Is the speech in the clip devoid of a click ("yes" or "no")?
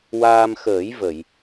yes